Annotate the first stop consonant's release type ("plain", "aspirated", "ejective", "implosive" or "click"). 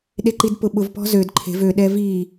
implosive